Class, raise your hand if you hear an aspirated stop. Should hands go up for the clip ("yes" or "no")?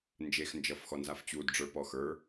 no